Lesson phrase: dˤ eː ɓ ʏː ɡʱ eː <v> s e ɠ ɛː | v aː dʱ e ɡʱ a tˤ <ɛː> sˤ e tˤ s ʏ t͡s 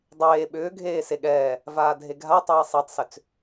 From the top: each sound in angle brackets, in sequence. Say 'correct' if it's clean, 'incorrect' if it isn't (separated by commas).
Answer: incorrect, correct